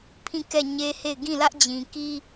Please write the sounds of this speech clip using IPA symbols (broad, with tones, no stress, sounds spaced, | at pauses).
pʰ ĩ˦˨ k ɛ˦˨ ɲ e˦ h e˦˨ ɪ̯ ɡ ĩ˦˨ l ä˦ ʔ d͡ʑ ĩ˨ k i˦